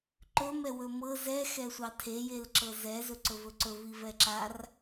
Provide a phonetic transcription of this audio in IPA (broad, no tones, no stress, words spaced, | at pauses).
ǃɵmɛ wɵmɤ zɛxɛ sʷɑtʰejelǁɤ zɛzɵǀɵ vɵǀɵvi vɛǁar